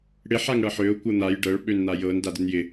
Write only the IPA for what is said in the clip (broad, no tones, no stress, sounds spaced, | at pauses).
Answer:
ɽ ɪ ħ a ŋ ɽ ɤ ħ ø ʊ̯ kʷ ɤ n̪ a j ɖ ɤ ɭ ɓ ø n n̪ a j ɤ n d a d ɪ n j ɪ